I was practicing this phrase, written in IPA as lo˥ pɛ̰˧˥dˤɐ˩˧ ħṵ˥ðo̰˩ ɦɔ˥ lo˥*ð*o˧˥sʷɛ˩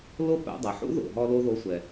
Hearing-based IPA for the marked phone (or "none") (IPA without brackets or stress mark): ð